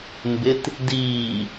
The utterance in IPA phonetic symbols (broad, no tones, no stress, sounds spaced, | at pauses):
m b ɪ t | d iː